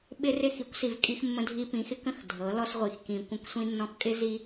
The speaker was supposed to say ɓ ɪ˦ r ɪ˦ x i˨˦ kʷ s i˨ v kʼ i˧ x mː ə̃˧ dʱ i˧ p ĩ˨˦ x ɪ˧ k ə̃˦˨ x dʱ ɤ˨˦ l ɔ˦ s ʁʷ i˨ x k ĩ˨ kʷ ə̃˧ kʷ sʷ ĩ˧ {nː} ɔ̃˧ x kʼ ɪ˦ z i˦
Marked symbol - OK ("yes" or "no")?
yes